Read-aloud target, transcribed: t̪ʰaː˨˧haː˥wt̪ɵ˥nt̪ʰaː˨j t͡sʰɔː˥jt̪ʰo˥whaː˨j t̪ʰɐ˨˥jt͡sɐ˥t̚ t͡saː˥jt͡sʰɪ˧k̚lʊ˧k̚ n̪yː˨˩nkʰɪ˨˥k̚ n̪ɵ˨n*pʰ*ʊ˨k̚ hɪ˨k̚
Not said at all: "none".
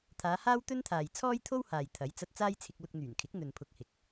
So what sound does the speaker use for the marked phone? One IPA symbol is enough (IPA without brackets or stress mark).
pʰ